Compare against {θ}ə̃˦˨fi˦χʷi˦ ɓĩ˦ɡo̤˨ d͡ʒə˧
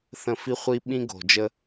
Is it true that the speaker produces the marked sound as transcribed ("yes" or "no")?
yes